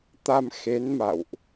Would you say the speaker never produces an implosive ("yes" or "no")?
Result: yes